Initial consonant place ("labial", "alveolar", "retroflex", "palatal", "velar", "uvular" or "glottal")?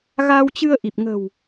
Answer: velar